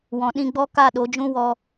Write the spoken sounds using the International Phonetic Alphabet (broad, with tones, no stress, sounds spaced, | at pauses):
w ɔ̃˨ ɗ ĩ˧ ɡ͡b ɔ˦ k a˦˨ ɗ o˨˦ d͡ʒ ũ˦ w ɔ˧